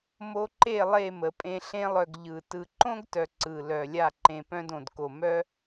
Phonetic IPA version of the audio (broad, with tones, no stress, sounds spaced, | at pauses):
m o˧ ǃ e˦˨ lˠ e˦˨ m ə˨ pʼ ẽ˧ ɬ ẽ˧ lˠ œ˨ ɡ ʎ ɯ˨ t ɯ˨ ǃ õ˦ ɡ t œ˨ ǀ ɯ˨ l œ˨ lʲ a˦˨ ǃ ẽ˧ p œ̃˦ d õ˨ d k o˨ m œ˦